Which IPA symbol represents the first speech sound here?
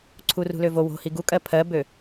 ǀʰ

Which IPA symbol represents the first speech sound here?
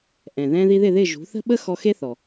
ʔ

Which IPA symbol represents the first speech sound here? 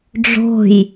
ɖ͡ʐ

